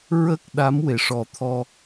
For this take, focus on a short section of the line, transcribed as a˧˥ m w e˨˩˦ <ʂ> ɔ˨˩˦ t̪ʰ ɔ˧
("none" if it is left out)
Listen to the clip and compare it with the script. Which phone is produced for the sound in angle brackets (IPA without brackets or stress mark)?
ʂ